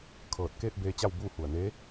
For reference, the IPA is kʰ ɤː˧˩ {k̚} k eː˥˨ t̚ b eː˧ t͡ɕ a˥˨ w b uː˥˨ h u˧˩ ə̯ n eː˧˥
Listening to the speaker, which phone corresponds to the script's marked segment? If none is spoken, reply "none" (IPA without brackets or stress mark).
t̚